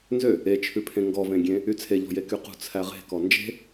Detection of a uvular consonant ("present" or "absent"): present